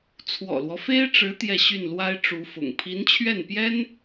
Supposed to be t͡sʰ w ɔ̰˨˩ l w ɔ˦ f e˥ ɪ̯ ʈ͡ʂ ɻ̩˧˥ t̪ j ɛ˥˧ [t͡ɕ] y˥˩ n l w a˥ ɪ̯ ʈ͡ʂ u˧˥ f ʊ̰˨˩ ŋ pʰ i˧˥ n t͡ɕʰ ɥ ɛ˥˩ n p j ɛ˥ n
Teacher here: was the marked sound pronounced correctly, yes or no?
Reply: no